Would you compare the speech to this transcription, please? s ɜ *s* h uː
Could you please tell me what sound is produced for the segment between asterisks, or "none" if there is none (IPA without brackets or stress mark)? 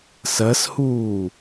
s